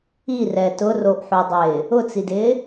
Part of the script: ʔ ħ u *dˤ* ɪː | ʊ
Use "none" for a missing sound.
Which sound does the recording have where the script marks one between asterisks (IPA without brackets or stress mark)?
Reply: dˤ